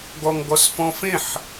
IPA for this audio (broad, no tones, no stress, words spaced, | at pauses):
ɡɔŋɡɔsfɔ̃fẽħ